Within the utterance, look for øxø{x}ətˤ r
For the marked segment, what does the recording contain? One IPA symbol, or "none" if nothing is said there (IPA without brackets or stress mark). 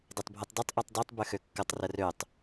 kː